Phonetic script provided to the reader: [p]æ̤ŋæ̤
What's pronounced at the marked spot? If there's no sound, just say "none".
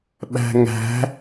ɓ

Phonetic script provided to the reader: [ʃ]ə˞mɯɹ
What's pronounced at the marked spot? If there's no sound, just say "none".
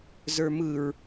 z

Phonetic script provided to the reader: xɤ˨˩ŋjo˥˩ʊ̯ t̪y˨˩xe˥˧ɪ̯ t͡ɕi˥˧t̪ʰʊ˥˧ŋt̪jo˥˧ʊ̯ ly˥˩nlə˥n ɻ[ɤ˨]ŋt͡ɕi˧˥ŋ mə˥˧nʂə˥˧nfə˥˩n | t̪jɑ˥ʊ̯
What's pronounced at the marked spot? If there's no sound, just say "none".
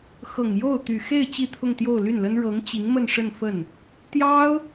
ɤ˧˥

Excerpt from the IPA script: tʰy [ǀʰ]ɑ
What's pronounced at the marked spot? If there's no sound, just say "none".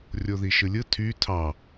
tʰ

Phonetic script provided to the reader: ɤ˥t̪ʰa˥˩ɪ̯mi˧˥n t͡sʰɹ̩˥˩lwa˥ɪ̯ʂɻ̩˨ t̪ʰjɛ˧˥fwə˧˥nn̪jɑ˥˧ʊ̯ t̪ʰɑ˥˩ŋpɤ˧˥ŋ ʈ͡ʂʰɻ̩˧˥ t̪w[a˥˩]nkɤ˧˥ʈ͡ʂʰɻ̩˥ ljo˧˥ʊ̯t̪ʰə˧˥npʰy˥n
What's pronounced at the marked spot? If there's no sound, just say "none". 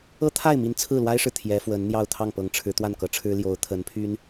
a˥˩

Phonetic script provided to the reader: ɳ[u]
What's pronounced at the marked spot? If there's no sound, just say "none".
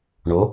o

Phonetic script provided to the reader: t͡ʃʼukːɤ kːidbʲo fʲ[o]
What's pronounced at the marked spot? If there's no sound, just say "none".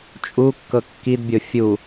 u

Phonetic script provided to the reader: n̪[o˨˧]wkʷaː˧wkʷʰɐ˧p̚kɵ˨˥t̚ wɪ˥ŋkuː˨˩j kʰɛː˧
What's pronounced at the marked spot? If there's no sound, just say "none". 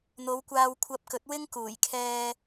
o˨˧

